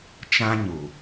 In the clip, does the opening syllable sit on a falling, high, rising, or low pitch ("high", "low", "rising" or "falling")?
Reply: high